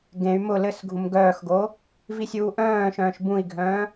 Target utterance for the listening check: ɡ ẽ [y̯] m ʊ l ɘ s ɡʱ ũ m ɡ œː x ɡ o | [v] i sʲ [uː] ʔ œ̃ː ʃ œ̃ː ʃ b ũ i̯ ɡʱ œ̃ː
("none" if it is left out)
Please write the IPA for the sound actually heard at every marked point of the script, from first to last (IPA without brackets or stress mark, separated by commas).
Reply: y̯, v, uː